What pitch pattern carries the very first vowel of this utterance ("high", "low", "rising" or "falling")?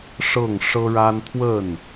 falling